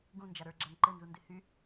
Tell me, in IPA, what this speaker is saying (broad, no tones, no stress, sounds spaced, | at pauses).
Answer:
ɡ ũ n d͡ʒ a ɾ ə˞ ɡ͡ǁ a ŋ ǃ ɘ n z u n d ɪ h y